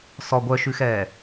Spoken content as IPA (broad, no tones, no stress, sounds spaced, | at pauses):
s ɔ ɡʷ œ ʃ ʉ x ɛː